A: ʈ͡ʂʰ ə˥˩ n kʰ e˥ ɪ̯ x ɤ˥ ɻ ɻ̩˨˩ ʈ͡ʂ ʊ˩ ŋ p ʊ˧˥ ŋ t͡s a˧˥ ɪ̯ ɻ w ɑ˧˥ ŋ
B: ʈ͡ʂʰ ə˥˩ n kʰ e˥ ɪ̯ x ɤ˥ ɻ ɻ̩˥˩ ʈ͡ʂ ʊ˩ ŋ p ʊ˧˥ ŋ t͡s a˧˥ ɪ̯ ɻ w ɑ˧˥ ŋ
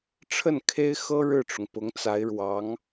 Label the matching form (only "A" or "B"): B